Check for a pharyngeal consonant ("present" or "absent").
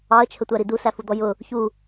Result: absent